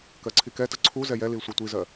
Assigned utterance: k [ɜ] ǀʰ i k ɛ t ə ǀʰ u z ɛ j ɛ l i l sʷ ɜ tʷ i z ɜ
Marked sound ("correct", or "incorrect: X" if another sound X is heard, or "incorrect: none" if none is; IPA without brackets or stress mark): correct